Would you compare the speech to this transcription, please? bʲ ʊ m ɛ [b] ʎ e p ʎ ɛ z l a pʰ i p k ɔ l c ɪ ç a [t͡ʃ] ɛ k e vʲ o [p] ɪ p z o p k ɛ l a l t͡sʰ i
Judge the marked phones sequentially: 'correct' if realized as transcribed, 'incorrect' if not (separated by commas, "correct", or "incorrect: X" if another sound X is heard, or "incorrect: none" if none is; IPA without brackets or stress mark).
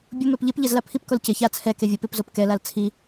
incorrect: p, incorrect: t͡sʰ, correct